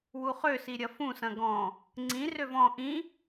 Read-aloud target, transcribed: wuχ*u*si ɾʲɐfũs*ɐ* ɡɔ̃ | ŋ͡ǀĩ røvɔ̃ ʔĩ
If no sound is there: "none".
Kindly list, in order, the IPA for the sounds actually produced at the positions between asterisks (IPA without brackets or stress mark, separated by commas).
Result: ø, ɐ̃